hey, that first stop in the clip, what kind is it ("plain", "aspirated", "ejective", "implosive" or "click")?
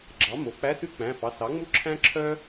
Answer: click